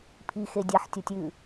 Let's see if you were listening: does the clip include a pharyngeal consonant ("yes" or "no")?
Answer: yes